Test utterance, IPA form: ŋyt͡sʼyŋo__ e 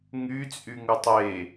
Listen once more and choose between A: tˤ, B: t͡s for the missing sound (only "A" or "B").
A